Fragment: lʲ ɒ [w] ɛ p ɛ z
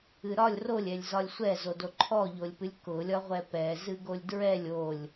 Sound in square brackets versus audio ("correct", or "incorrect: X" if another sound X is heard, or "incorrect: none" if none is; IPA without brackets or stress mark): incorrect: ʁʷ